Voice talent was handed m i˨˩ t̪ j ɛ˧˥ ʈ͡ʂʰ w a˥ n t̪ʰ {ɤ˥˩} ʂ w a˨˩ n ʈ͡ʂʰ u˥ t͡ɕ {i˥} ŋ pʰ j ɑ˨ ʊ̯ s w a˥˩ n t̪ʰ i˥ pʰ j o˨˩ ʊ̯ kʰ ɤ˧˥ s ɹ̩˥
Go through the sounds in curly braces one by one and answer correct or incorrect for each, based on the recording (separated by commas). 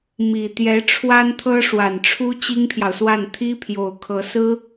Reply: incorrect, correct